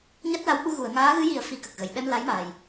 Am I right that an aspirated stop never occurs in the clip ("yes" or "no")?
yes